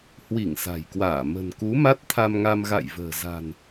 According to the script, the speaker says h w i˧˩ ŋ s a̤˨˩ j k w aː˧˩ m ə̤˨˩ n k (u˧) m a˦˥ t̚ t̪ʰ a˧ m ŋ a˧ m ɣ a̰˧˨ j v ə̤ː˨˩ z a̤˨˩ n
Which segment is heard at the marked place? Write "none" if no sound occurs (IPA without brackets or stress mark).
u˨˦